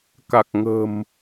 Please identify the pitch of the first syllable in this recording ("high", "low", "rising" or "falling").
low